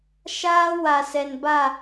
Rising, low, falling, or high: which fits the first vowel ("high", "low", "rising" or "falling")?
high